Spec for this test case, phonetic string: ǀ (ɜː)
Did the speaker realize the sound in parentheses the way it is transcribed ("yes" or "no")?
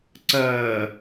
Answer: yes